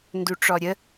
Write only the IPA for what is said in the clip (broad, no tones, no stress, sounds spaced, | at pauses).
n d u ʈ͡ʂ ɔ ɾʲ ə